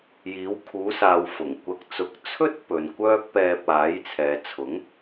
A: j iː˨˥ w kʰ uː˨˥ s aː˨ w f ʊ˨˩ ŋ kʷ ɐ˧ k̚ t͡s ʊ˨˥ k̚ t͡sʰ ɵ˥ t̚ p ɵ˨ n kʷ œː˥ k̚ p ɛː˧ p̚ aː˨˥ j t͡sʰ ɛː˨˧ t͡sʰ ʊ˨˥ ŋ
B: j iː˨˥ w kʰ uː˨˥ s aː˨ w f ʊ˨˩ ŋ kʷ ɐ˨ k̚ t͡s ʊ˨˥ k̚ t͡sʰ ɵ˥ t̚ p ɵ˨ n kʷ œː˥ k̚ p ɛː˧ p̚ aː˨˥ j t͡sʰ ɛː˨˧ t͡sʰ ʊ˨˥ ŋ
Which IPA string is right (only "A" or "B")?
B